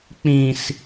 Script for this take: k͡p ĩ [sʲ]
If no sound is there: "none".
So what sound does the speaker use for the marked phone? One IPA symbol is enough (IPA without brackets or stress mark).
s